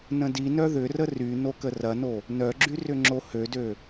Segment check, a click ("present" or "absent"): present